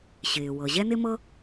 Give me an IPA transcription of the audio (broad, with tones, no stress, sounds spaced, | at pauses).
ɕ ɪː˩ w ɤ˩ ʑ ɛ˥ n ɪ˥ m ɤ˥